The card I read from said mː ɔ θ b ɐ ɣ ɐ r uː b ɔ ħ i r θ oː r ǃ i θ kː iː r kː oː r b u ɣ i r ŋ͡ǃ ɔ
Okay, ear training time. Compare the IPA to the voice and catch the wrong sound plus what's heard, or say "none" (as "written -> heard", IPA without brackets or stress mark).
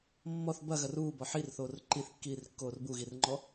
none